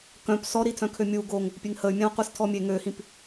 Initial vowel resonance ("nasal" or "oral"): nasal